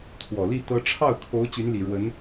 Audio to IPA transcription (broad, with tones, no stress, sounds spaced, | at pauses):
t̪ʰ w ɔ˨˩ l i˥˩ t̪ ɤ˥ ʈ͡ʂʰ ɑ˥˩ ʊ̯ kʰ o˧˥ ʊ̯ t͡ɕ y˧˥ n l i˨˩ ɻ w ə˧˥ n